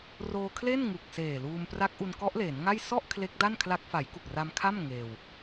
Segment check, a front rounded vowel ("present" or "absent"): absent